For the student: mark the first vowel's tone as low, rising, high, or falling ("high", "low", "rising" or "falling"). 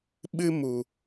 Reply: high